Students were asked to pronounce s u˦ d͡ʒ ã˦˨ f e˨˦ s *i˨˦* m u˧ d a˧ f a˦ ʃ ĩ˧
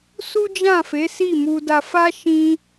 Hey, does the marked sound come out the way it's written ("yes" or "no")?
no